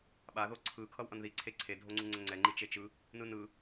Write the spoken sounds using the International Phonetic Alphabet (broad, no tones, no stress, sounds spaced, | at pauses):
ɓ a ð o ǀʰ ɯ kʰ ʌ w ʔ ʌ n ð i ǀʰ e ǀʰ e dʱ o ŋ͡ǀ u ŋ͡ǀ ɛ ŋ͡ǀ ɛ ŋ͡ǃ i t͡ʃ e t͡ʃ ɯ | n ɯ n ɯ